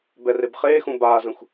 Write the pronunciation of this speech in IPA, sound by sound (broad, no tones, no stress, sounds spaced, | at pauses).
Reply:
b ɛ r e b χ eː x ũ b aː z ə̃ xʷ